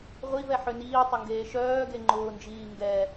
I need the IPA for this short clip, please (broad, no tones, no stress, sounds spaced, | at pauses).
ʁʷ i v ɛ ħ ø n iː tˤ ʊ ŋ ɡ eː ʃ œː ɡ e ŋ͡ǃ ʊː n d͡ʒ iː ŋ ɡ ɛ